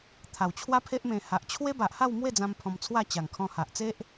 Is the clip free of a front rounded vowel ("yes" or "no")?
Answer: yes